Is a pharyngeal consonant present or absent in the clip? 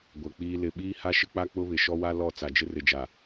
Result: absent